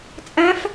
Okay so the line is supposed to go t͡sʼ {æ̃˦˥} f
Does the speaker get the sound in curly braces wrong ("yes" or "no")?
no